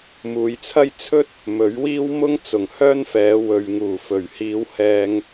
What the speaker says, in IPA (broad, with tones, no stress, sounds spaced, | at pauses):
m uː˨˧ j t͡sʰ ɐ˥ j t͡sʰ ɵ˥ t̚ | m ɵ˨˥ ɥ w iː˥ w m ʊ˥ ŋ t͡s ʊ˨˩ ŋ h œː˥ n f ɛː˨˧ w ɵ˨ ɥ ŋ uː˨˩ f ɵ˨˩ ɥ h iː˨˧ w h ɛː˧ ŋ